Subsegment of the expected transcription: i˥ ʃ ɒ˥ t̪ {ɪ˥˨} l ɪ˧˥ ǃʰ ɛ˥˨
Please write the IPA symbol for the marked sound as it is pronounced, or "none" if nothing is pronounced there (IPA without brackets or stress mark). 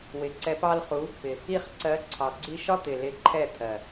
ɪ˨˩